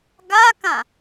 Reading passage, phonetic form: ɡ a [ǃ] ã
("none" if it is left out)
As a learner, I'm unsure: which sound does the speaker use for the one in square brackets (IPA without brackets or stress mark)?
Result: k